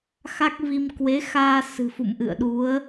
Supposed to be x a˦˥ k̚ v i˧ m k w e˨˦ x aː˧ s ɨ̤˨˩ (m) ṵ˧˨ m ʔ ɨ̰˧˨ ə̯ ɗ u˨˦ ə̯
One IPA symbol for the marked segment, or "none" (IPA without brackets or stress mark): f